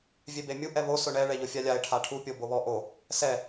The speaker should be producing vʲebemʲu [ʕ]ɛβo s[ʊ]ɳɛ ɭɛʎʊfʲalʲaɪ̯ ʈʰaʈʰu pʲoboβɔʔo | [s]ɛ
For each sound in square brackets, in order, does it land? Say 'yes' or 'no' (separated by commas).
no, yes, yes